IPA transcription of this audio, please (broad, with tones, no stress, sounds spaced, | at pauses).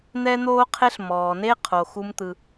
n̪ ɛ˧ n̪ oː˧ qʰ e˧ ɬ m ɔː˩ n e˥ qʰ o˩ x u˧ m t̪ ɯ˩